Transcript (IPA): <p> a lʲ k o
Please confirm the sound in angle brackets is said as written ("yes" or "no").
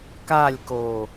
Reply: no